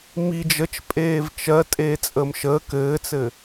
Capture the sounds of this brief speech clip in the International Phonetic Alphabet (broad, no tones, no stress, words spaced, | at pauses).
mi d͡ʒət͡ʃ pʼeːvt͡ʃɜ tʼeːt͡sʼəːmʃəː kɘːt͡sɘ